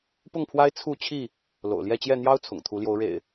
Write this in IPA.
p ʊ˥˨ ŋ pʰ w a˦ ɪ̯ t͡sʰ u˥˨ t͡ɕʰ i˥˨ | l o̰˨˩ ʊ̯ l j ɛ˥˨ t͡ɕ j ɛ˥˨ n̪ j ɑ˦ ʊ̯ t͡sʰ ʊ̰˨˩ ŋ t̪ʰ u˨˦ l j o˨˦ ʊ̯ ɻ ḛ˨˩ ɪ̯

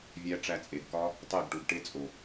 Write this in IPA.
vʲ æ˧ ʈ͡ʂ æ˧ t͡sʼ e˨ ɡ k ɒ˦ | tˤ e˦˨ ɡ ʈ u˨ ɡ ʈ e˦ t͡sʼ o˨

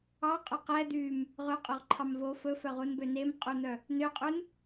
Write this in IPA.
ɑ qʼ œ q ɛ d̪ y m | ʁ ɵ qʼ œ ʁ ǃʰ ɑ m v o f ɵ f œ ʁ u n b ø n e m qʼ u n̪ œ | n ø qʼ u n

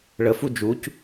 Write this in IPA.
ɭ ə f u d͡ʒ u c

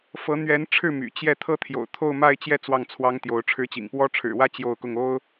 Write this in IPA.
f ɤ˧˥ n̪ ɥ ɛ˧˥ n ʈ͡ʂʰ ɻ̩˥˩ m y̰˨˩ t͡ɕ j ɛ˥˧ t̪ʰ ɤ˥˩ t̪ʰ j o̰˨˩ ʊ̯ t̪ʰ o˥˧ ʊ̯ m a˥˧ ɪ̯ t͡ɕ j ɛ˥˧ t͡s w ɑ˥˩ ŋ t͡sʰ w ɑ˥ ŋ t̪ j o˧˥ ʊ̯ ʈ͡ʂʰ ɻ̩˧˥ t͡ɕ ḭ˨˩ ŋ p w ɔ˥ ʈ͡ʂʰ ɻ̩˨˩ w ä˥ t͡ɕ j o˥˧ ʊ̯ k ʊ˥˩ ŋ o˥ ʊ̯

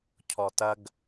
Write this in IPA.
cʰ ɔ t ɐ ɡ

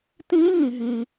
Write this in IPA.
t ĩː˦˥ ŋ ĩ˨ ɦ ĩ˨

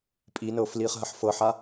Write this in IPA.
pʼ i n ɤː f l iː χ ɦ ɐ ħ f ɤ ħ a

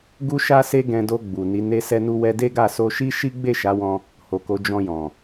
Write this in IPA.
ɡ u˦ ʃ a˦ s e˦ ɡ ɛ̃˧ d o˧ ɡ͡b u˨ n i˨˦ n e˧ s ɛ˧ n u˧ w ɛ˧ d e˦ ɡ a˦˨ s o˧ ʃ i˦ ʃ i˦ ɡ͡b e˦˨ ʃ a˨˦ w ɔ̃˧ | h o˨ k o˨˦ d͡ʒ ɔ̃˧ j ɔ̃˨

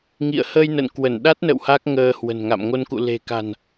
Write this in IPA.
ŋ ḭ˧˨ ə̯ h ə˧ j n ə̰˧˨ n k w ə˧˩ n ɗ a˦˥ t̚ n ə̰˧˨ w h a˦˥ k̚ ŋ əː˧ h w ə̤˨˩ n ŋ a̰˧˨ m ŋ o˧ n k ṵ˧˨ l e̤˨˩ k a̤˨˩ n

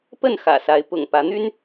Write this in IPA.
p ə˥˨ n x ä̰˨˩ s a˨˦ ɪ̯ p ʊ̰˨˩ ŋ p ä˨˦ n̪ y˦ n

